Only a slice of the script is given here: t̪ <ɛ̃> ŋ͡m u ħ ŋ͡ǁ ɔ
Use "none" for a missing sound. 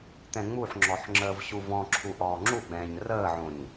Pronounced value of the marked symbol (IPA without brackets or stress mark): ɛ̃